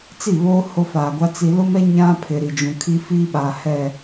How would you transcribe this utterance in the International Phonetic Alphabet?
t͡s i˦˨ β oː˦ h o˦ f aː˨ ɡʷ a˦ t͡s i˨ l ʊ˦ m ɛ˦ ɲ ã˦ pʰ ɪ˨ ɾ i˨ d͡ʒ ũ˨ kʰ i˦ f iː˦ ɓ aː˨ h ɛ˦˨

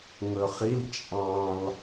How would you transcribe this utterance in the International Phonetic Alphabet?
ŋ ɵ χ i l t͡ʃʼ ɑ̃ l

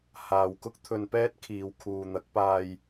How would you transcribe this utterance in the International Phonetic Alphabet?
h aː˨ w k ʊ˥ k̚ t̪ʰ ɵ˧ n p ɛː˥ t̚ kʰ iː˨ w kʰ uː˨ n̪ ɐ˨˥ k̚ p aː˧ j

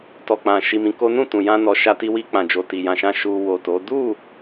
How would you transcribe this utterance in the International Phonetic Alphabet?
t ɔ˨ k͡p ã˨ ʃ i˧ m ĩ˧ k o˦ n ũ˦˨ t ũ˨ j ã˧ n ɔ˨ ʃ a˧ t i˧ w i˧ k͡p ã˨ d͡ʒ o˨ t i˨ j ã˨ ʃ ã˧ ʃ u˧ w o˨ t o˨˦ d u˦˨

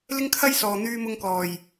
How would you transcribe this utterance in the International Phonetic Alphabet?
l ɪ˥ ŋ kʰ ɐ˥ j s ɔː˨ n̪ yː˧ m ʊ˧ ŋ k ɔː˨˩ j

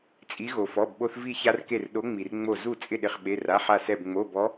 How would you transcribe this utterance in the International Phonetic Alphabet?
t͡sʼ i˨˦ ɣ o˩ f ɔ˩˧˩ b ɓ o˦ θ v i˥˩ ç a˦ r k e˧˩ r ɗ o˨˦ ŋ͡m i˩ r ŋ͡m o˧˩ z u˥˩ t͡sʼ ɪ˥˩ ɗ ɪ˧˩ χ ɓ e˩˧˩ r a˩˧˩ ħ a˧˩ s ɛ˧˩ b ŋ͡m o˩˧˩ b ɔ˨˦

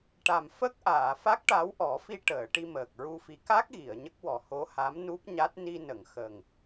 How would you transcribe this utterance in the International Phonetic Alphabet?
ʈ a˨˩ m f ə˦˥ k̚ ʔ aː˨˩˨ f a˦˥ k̚ ʈ a˧˥ w ʔ ɔ˨˩˦ f i˧ ʈ əː˨˩˨ ʈ i˧ m əː˨˩ k̚ ɹ u˧ f i˧˥ k a˦˥ k̚ ɣ i˨˩˨ ə̯ ɲ ə˦˥ k̚ w ɔ˨˩ h o˧˥ h a˧˥ m n u˦˥ p̚ ɲ a˦˥ t̚ n i˧ n ə˨˩˨ ŋ x ə˨˩ ŋ

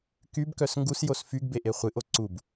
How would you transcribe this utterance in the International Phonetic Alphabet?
k y b k œ s ŋ ɡ u s j o s f y ɡ b e ʔ e χʷ ɨ ʔ o ǀ u b

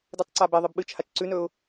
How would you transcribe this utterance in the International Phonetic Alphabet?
d ɨ tˤ ǀ a b e ðˤ ɨ b ɓ ɨ t͡ʃ h a t͡ʃ ǀ ʉ n ɵ ʊ̯

